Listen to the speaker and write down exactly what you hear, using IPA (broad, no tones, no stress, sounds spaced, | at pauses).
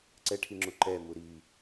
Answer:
ǀ ɛ ʈʰ i ŋ͡ǁ u ǃ ɛ m u ɾ i